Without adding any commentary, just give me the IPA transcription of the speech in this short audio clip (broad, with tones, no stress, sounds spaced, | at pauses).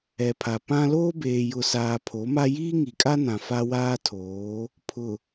ɛ˨ pʰ a˨ p ã˦ l oː˦ b eː˨ j ʊ˨ s aː˨ pʰ o˨˦ m a˦ j iː˦ ŋ i˨ kʼ a˦ n ã˨ f a˦ w aː˦ tʰ oː˨˦ | pʰ ʊ˨